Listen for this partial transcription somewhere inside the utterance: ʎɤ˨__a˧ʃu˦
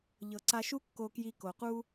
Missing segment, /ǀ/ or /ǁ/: ǀ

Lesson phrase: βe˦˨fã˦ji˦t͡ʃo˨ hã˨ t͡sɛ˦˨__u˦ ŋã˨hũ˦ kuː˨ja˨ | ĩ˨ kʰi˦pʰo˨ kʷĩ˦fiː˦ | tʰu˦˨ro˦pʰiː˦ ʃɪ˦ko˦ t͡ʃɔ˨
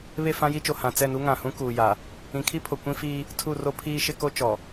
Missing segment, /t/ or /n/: n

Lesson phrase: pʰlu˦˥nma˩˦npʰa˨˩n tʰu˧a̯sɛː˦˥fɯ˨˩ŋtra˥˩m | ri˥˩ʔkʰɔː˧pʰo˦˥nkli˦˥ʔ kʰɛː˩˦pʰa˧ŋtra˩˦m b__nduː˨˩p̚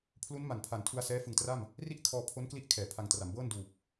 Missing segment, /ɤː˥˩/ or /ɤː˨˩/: ɤː˥˩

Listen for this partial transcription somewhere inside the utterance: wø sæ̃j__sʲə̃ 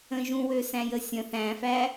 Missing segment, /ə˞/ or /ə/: ə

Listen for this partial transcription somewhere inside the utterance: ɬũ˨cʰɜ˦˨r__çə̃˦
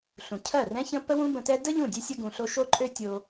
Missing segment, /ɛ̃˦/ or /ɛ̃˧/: ɛ̃˦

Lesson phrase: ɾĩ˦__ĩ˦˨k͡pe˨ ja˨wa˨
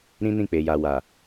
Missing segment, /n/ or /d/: n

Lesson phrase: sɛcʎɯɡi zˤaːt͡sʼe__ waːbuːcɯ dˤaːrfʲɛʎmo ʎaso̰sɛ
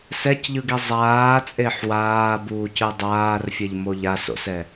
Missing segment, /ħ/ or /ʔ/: ħ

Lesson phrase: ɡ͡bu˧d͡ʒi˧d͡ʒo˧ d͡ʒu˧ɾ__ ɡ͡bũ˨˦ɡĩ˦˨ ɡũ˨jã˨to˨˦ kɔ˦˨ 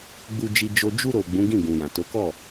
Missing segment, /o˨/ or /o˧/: o˨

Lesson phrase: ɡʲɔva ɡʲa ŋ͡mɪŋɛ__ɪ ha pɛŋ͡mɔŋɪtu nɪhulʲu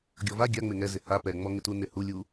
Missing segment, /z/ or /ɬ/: z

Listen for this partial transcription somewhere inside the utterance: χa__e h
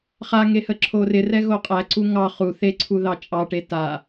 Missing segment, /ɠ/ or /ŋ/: ŋ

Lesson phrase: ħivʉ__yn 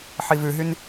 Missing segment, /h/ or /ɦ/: ɦ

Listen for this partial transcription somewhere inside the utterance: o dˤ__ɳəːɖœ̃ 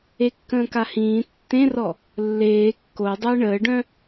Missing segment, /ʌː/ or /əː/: əː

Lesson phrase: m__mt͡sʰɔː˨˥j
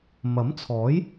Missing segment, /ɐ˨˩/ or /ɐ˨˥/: ɐ˨˥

